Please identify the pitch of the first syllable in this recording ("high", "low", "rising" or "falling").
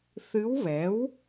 rising